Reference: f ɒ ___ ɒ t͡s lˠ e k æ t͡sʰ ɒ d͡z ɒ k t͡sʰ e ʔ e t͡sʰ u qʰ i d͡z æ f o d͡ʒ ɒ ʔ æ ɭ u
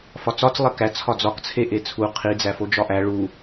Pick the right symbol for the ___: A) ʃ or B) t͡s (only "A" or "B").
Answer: B